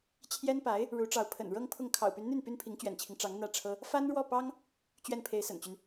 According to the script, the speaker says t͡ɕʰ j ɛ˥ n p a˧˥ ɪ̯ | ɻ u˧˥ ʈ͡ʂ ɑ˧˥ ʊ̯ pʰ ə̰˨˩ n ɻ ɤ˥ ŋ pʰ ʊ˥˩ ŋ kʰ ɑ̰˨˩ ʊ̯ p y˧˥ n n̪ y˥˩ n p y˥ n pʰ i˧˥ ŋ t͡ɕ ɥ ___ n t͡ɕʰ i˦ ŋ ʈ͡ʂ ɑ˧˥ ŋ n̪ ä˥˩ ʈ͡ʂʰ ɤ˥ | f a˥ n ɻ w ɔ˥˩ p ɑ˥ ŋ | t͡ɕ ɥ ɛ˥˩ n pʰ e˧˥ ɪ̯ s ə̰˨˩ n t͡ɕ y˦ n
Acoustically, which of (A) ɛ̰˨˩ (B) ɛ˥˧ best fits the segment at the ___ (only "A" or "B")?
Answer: A